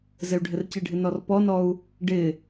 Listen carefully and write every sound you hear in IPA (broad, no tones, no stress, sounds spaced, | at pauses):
z ɪ u̯ ɖʱ ɪ r c ɪ ɖʱ ɪ n ɔ r p ɔ n ɔ u̯ | ɖ ɪ